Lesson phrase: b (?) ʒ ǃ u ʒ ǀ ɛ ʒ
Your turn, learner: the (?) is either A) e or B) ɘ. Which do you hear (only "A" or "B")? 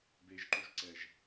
A